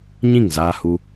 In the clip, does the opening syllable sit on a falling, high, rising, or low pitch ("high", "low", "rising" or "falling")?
falling